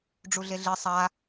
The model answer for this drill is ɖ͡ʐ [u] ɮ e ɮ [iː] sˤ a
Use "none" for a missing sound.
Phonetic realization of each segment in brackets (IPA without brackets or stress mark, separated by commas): u, i